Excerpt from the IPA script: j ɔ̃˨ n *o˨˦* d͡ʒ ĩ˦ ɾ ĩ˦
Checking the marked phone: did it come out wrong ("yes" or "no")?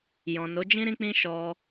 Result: no